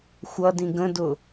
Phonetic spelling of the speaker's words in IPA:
xʷ ʌ d ĩ ɡ ə̃ d ʊ

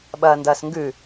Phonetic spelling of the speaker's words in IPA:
ɓ ɐː n d ɐː s ŋ ɡ ʉ

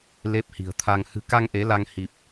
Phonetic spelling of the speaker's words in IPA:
l e˦˥ p̚ h i̤˨˩ ə̯ t̪ʰ a˧ ŋ h ɨ̤˨˩ k a˧ ŋ ʔ e˨˦ l a˧ ŋ h i˨˩ p̚

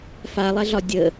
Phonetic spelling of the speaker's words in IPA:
f a lˠ ɛ ɮ ɒ dʲ ə

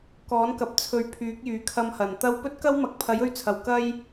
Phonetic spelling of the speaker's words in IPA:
k ɔː˨˥ n k ɐ˨ p̚ t͡sʰ ɵ˨˥ ɥ pʰ yː˨˥ k̚ j yː˨ kʰ ɐ˧ m h ɐ˨˩ n t̪ ɐ˧ w p ɵ˥ t̚ k ɐ˥ w m ɐ˨˥ k̚ pʰ ɐ˨˥ j ɵ˧ ɥ t͡sʰ ɐ˨˩ w k ɐ˥ j

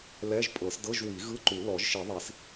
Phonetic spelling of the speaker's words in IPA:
l ɛ˧˥˧ ʒ pʼ ɤ˨˩˦ s d ɤ˧˥˧ ʒ w i˨˩˦ ɣ ɯ˧˥˧ ǃ u˨˩˦ l ɔ˨˩˦ ʒ ʃ i˨˩˦ ðˤ i˨˩˦ s

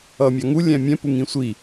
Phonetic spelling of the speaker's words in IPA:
ʌ mʲ ɑ ŋ u lʲ æ̃ mʲ ɛ̃ p u ŋ ĩ sʷ i

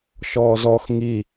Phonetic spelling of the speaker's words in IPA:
ʃ ɔː z ɔ x ŋ i

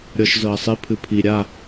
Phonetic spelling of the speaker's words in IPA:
ɾʲ ɔ ʃ z ɤ ɐ̯ sˤ i pʰ ɨ pʰ i ɾʲ a

